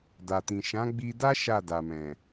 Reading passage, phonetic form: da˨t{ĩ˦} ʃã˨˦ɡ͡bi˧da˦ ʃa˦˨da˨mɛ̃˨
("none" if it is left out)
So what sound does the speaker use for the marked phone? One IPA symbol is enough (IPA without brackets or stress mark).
ĩ˨